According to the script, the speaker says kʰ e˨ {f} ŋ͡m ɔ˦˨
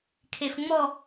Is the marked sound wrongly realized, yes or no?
no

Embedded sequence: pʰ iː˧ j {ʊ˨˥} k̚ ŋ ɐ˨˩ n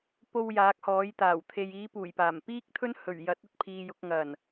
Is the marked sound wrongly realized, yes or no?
no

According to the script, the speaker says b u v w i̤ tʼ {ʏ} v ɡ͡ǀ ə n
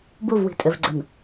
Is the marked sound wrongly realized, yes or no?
no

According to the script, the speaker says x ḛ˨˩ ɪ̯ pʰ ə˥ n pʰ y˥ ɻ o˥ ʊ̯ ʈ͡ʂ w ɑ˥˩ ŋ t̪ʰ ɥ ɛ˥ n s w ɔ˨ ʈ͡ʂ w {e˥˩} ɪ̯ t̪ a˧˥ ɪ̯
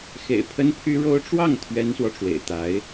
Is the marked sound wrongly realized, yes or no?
yes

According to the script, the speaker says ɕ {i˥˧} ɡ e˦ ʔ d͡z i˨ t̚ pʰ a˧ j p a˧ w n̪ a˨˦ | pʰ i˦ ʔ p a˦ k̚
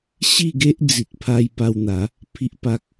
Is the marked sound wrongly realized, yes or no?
no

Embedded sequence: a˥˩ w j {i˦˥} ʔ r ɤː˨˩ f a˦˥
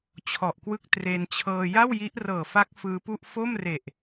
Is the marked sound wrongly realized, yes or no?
no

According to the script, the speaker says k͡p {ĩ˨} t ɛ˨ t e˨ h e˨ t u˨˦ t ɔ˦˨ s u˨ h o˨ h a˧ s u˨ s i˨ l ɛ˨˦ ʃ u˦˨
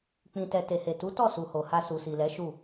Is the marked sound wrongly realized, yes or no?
no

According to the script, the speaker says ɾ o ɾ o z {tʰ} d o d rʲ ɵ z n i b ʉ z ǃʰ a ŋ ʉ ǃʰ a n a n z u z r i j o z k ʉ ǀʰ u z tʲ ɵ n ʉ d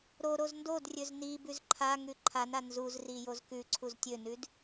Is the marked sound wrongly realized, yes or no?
yes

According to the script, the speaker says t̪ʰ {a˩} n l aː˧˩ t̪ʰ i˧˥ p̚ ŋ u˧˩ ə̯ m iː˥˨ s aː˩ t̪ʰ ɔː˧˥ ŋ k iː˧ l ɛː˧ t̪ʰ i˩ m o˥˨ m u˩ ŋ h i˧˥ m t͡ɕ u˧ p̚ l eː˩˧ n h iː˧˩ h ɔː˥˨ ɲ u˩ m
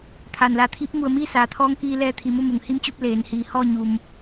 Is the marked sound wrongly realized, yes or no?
no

